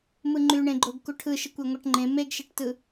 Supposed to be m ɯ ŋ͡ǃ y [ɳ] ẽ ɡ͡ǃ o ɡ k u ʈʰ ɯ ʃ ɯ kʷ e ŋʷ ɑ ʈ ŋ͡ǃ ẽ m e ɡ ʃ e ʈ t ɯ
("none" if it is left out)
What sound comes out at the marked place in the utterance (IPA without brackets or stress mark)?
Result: ɳ